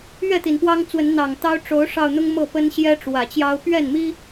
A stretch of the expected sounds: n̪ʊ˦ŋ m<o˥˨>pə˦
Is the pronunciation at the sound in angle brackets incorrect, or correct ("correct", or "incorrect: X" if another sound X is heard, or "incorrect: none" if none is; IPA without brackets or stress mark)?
incorrect: ɤ˥˨